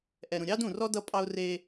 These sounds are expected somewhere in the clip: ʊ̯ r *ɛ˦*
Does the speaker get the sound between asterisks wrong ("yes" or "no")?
yes